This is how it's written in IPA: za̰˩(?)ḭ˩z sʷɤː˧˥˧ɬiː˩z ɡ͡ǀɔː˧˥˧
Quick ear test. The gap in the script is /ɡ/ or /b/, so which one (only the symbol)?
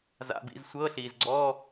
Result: b